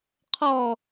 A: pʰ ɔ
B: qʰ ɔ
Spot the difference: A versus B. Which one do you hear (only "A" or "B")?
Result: B